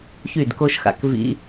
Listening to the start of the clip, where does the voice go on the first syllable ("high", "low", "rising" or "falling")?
falling